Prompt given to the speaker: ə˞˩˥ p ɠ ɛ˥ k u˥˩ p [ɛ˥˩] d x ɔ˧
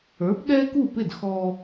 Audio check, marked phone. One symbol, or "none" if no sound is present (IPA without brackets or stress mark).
ɪ˥˩